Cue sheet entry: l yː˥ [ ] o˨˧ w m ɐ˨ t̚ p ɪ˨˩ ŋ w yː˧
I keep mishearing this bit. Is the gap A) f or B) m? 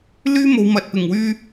B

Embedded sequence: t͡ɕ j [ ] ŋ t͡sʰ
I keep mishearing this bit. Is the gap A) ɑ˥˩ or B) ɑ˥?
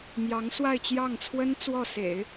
A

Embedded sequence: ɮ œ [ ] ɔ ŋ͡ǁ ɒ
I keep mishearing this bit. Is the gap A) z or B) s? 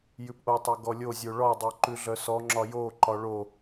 B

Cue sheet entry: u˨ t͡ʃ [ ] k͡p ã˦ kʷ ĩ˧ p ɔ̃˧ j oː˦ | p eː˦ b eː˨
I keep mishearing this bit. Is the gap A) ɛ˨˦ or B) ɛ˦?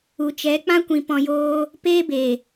A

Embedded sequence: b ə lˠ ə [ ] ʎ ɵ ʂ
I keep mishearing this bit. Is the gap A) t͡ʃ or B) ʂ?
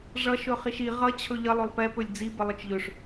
A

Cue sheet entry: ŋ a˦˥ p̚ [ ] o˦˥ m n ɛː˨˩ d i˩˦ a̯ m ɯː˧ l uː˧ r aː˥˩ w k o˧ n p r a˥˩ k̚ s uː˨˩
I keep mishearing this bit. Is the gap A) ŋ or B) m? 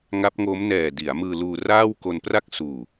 A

